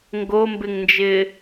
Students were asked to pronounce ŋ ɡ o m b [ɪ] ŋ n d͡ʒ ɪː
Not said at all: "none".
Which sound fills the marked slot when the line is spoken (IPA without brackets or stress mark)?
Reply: ɪ